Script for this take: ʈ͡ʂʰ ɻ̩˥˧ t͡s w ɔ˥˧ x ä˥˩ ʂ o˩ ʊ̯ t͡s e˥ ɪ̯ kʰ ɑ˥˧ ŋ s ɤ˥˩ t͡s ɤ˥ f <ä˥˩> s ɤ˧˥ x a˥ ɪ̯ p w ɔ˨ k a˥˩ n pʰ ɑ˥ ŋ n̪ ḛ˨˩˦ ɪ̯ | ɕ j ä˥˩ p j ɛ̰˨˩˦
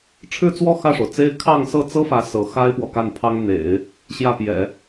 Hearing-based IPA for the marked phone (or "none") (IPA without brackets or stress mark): ä˧˥